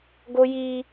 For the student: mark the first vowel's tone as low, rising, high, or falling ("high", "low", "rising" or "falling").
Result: high